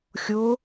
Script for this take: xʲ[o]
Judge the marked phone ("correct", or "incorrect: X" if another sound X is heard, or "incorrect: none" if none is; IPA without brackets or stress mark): correct